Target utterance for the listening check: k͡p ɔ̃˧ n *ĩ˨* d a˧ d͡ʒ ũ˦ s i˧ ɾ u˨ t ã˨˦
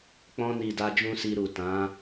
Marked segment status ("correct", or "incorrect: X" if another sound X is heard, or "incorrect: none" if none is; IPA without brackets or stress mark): incorrect: i˨